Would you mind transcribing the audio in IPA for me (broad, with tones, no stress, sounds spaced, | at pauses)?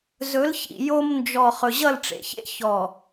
z ɵ˨˦ l ç ḭ˨ j o˦ m n d͡ʒ ɔ˨ χ ɵ˨ ʑ ʌ˦˨ l ʈ͡ʂ ḛ˨ ç ḛ˦ ç ɔ˨